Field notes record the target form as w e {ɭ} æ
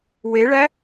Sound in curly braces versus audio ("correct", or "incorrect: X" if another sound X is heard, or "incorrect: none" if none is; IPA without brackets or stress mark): correct